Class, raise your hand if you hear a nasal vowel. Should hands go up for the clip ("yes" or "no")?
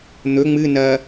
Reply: no